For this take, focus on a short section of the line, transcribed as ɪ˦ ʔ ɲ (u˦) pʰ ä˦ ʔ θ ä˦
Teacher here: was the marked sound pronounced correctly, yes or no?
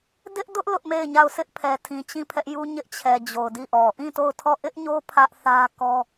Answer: no